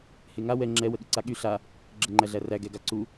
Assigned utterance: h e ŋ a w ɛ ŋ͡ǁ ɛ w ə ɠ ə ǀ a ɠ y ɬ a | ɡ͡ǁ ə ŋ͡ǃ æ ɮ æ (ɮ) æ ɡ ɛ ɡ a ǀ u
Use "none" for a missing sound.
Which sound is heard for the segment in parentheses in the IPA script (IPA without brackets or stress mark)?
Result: r